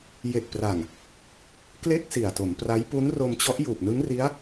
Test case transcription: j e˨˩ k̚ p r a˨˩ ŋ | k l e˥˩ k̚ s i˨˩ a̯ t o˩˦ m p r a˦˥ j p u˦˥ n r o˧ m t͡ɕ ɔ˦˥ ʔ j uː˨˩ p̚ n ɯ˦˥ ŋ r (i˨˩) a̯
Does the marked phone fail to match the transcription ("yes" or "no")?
yes